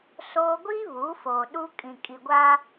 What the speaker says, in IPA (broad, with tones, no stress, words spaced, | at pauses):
soː˦ ɡʷiː˦ βuː˨˦foː˨ ɗu˦ kʼĩ˨kʼi˨ɡʷaː˦